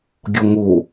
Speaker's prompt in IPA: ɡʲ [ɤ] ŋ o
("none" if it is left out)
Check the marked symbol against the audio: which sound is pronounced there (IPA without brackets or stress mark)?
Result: ɔ